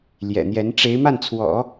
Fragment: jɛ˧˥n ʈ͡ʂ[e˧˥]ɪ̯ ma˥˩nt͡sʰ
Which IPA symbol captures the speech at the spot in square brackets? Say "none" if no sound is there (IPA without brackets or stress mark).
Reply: e˧˥